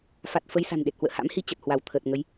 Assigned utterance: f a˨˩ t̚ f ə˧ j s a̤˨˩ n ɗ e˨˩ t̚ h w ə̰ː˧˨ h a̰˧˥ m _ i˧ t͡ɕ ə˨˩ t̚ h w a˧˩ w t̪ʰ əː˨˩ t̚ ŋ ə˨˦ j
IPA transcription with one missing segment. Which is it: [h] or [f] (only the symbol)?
h